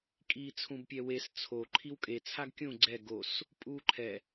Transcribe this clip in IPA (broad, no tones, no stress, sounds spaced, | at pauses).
kʼ iː t͡sʰ ũ b pʲ ɛ w e s t͡sʰ o ǃʰ i w kʼ e t͡sʰ a ɡ kʲ ũ ɡ͡ǀ ɛ ɡ o s | pʼ uː ǃʰ ɛ